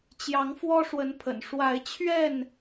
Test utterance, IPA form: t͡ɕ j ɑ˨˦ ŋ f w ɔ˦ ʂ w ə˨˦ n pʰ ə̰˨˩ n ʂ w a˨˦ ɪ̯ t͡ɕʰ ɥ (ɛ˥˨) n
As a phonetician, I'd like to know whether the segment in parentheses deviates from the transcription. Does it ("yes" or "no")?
no